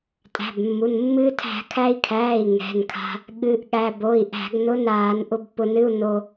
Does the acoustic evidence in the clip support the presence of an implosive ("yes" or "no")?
yes